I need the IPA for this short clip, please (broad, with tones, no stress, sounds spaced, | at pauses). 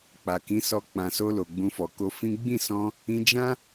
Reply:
k͡p a˨ k ĩ˨˦ s ɔ˧ k͡p ã˨ s o˧ l o˨ ɡ͡b ũ˧ f ɔ˨ k o˧ f ĩ˦ ɡ͡b ĩ˦˨ s ɔ̃˧ | ĩ˧ d͡ʒ ã˦